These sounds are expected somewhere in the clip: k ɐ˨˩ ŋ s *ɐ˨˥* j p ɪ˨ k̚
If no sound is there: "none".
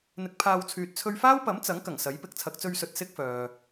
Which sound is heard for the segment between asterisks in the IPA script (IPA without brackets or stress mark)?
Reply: ɐ˨˥